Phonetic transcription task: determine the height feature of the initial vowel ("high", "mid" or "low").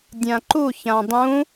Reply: low